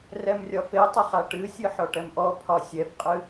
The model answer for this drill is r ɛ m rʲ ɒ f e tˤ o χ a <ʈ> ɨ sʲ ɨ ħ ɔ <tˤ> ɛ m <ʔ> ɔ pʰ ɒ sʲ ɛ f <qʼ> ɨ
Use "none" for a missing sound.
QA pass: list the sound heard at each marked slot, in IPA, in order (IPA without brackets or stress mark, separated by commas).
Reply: ʈ, ʈ, ʔ, qʼ